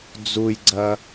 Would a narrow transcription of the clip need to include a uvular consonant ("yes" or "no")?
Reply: no